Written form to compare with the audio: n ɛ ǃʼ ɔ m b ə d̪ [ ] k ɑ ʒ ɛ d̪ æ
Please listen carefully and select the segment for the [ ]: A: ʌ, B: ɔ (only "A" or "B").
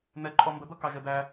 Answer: A